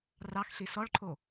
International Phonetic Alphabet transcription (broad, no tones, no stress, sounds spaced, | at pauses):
r ɑ x ɬ i s ɔ ɭ ǃʰ o